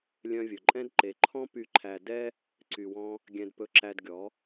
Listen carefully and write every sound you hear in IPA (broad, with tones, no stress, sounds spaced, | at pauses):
lʲ œ̃˧ vʲ ɵ˨ ǃʼ ɛ̃˦ d ǃ e˧ ǃʰ ɔ̃˦ p y˨ ǃʰ æ˨ d ɛ˧ | ǀ y˧ w ɔ̃˦ | ɡʲ ɛ̃˧ d p ɵ˧ ǁ æ˧ d ɡʲ ɔ˨˦